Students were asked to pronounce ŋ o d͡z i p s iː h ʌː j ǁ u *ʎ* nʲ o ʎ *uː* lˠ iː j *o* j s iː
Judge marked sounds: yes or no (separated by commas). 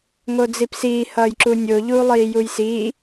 no, yes, no